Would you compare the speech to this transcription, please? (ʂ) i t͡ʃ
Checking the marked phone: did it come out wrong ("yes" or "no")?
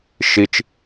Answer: yes